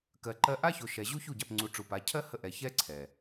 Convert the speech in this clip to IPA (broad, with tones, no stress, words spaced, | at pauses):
kɜ˨ǃɜ˧ ʔa˦ço˨ ʃɛ˨ ʑu˦çu˦˨ɟa˨pŋ͡ǀu˨ ʈ͡ʂu˨pa˨˦ cʰɜ˦hə˧ ʔɛ˨ çɛ˦ ǀʰɛ˨